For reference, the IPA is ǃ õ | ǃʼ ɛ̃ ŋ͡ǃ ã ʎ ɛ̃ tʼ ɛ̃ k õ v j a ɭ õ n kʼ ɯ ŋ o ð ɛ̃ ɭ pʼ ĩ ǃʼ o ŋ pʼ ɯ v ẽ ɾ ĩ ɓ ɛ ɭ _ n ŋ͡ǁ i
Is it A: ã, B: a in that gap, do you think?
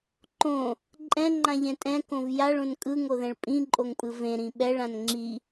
A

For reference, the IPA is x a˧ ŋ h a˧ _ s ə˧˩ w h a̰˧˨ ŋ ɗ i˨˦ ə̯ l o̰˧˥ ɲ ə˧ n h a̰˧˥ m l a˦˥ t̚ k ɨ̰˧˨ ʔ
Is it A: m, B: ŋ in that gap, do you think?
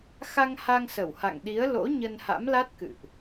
B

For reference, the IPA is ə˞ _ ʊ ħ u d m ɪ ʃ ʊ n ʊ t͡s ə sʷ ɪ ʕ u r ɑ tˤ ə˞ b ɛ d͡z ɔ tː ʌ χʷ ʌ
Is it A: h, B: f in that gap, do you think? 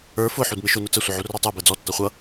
B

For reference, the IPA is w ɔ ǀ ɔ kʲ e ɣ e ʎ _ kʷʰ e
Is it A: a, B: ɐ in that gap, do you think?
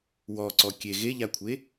A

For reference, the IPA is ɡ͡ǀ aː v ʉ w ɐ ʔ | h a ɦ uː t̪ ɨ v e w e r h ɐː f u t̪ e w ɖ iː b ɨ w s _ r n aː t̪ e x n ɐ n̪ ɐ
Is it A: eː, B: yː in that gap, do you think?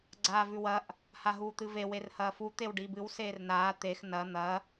A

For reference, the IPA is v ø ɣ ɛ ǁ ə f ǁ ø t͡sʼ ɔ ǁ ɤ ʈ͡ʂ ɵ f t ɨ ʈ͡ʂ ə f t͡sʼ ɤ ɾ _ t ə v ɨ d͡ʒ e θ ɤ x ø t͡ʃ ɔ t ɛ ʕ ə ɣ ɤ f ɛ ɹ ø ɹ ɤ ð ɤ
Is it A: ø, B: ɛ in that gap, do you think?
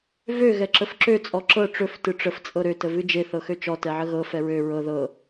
A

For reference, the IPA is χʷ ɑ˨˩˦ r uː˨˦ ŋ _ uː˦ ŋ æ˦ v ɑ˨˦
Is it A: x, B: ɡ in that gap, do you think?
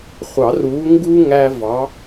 B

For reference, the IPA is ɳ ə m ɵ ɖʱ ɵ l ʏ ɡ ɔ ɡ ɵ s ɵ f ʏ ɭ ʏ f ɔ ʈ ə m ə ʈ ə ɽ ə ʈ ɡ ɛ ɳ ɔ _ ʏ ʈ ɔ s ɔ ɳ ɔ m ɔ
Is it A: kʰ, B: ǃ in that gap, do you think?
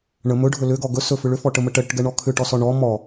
A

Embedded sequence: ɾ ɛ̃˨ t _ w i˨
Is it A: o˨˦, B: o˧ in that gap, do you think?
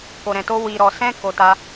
B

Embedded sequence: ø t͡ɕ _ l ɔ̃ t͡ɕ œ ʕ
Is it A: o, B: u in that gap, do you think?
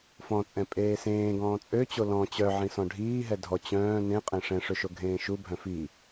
A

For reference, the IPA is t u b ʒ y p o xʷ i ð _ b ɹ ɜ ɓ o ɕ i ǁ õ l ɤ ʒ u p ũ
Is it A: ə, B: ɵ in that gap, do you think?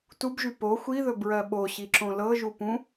B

